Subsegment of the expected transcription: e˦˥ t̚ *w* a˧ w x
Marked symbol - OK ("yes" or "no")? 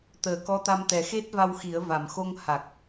no